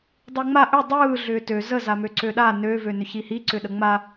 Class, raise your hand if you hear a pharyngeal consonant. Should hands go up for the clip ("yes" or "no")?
no